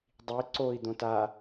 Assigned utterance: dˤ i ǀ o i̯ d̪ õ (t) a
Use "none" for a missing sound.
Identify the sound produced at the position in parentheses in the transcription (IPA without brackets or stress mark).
t